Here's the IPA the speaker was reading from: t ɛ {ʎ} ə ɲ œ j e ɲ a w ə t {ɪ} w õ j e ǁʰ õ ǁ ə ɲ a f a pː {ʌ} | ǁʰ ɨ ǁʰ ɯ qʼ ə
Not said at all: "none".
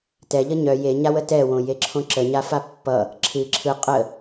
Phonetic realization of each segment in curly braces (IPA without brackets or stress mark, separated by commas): ʎ, ɛ, ʌ